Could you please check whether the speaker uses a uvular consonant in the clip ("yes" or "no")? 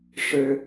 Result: no